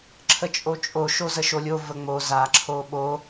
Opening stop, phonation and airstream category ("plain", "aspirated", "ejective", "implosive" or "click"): click